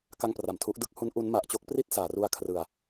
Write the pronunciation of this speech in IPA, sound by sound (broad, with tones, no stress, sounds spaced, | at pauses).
k a˧ ŋ p r a˨˩ m tʰ u˦˥ ʔ d ɯ˥˩ k̚ h u˦˥ n ʔ u˦˥ n m a˨˩ ʔ t͡ɕ o˥˩ k̚ p r i˥˩ t̚ s aː˩˦ r u˧ a̯ kʰ r ɯ˨˩ a̯